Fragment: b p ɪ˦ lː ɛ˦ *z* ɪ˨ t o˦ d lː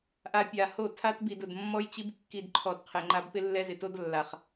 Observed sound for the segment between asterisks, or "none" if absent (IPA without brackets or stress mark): z